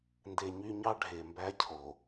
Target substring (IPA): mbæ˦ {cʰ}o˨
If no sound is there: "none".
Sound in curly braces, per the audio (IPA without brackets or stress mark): cʰ